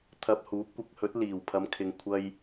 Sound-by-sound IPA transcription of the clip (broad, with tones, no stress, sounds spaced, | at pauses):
t̪ʰ ɐ˧ p̚ h uː˨˥ p̚ kʷ ɪ˨˥ k̚ h ɵ˨˥ t̚ l iː˨˩ w pʰ ɐ˨˧ m kʰ ɪ˨ ŋ kʷʰ ɐ˥ j